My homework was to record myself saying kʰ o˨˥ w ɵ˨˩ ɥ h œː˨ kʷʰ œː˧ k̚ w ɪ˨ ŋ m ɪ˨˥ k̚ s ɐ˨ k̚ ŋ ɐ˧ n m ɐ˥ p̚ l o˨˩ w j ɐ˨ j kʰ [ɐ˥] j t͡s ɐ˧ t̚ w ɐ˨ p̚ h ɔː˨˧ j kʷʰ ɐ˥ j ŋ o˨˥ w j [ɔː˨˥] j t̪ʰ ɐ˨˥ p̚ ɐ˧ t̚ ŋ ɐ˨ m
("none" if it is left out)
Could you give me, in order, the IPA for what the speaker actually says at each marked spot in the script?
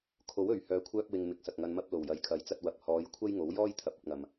ɐ˨˥, ɔː˥

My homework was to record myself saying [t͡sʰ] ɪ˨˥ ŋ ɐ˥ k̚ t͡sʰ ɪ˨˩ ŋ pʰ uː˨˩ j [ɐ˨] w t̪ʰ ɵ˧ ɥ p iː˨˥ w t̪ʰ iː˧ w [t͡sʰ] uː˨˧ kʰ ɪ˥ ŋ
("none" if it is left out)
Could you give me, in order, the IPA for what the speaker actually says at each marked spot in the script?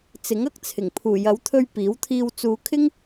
t͡s, ɐ˨˥, t͡s

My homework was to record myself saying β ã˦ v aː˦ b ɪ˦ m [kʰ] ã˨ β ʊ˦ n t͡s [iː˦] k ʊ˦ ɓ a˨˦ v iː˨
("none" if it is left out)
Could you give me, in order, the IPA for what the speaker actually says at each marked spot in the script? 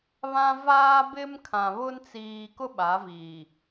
kʰ, iː˨

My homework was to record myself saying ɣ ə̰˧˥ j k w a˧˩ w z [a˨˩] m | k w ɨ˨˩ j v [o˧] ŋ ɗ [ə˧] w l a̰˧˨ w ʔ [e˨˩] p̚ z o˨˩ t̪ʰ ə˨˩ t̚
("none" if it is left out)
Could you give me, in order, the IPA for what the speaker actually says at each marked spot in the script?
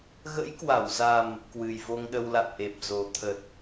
a˨˩, o˧, ə˧, e˨˩

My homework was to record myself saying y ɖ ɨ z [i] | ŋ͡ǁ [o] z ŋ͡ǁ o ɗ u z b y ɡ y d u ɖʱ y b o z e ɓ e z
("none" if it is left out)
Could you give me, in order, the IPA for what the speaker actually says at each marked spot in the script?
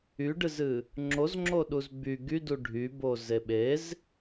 ɨ, o

